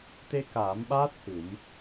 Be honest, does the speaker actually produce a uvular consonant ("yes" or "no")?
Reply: no